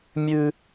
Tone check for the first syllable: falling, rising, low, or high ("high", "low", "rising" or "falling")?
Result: high